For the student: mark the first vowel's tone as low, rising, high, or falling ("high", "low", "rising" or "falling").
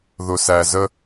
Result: low